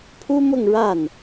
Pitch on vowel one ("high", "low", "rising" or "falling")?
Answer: high